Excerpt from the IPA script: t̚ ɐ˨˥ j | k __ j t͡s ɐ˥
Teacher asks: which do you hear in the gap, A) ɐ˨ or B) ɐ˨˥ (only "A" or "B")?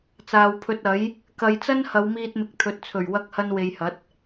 A